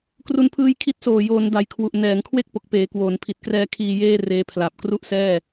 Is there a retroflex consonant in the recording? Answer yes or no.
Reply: no